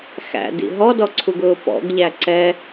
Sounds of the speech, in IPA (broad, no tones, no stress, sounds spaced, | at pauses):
x æ̰ d ḭ ɦ ɔ d ɔ ǀʰ u ɡ ʊː p ɔ̰ ɡ ʎ æ ǀ ɛ